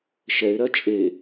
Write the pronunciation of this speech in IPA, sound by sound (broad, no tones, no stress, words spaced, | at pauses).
ʃɛɪ̯ɾɜ t͡ʃʼe